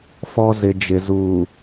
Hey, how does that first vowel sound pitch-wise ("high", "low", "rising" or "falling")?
high